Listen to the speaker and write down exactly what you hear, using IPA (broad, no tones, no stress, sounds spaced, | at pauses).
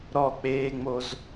ɾ ɔ k͡p eː ŋ͡m o z